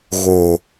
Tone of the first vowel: low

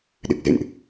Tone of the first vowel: low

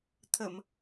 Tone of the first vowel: low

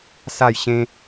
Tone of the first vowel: falling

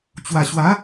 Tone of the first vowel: low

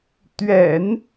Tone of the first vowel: low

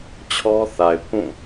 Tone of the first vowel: high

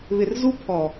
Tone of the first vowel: low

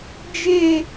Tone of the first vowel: high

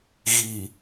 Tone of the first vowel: low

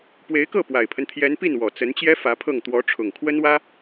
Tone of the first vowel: rising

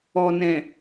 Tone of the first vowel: low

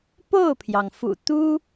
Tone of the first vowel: falling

